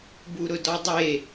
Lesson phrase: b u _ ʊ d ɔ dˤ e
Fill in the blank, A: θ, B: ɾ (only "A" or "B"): B